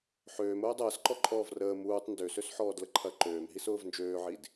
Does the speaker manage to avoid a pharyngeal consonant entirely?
no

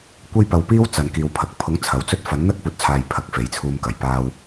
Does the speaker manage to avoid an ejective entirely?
yes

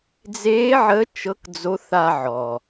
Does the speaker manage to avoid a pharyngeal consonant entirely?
no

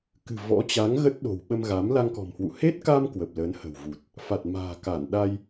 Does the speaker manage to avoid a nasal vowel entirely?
yes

